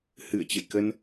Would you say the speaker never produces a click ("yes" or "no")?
yes